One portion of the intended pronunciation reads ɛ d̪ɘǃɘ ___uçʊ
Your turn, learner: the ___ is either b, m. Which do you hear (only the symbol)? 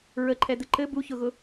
b